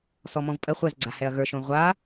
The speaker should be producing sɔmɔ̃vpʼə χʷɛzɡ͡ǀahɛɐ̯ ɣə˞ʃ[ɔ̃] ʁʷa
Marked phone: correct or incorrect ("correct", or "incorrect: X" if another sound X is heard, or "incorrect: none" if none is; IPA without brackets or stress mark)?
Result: incorrect: õ